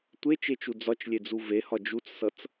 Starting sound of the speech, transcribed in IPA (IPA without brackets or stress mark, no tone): tʷ